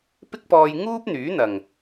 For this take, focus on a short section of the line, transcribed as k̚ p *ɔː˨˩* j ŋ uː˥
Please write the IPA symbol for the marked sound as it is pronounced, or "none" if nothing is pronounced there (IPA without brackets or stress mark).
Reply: ɔː˧